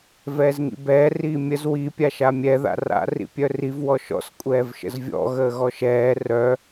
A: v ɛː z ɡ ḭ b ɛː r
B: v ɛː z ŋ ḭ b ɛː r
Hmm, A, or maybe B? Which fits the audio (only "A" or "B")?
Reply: B